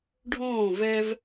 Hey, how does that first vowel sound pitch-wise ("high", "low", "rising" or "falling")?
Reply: falling